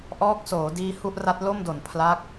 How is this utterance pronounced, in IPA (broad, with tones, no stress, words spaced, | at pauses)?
ʔɔː˦˥k̚soː˩˦ diː˧hu˥˩ʔra˦˥t̚ lo˥˩mdo˨˩n pʰla˦˥k̚